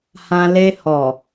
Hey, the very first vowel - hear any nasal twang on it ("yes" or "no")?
yes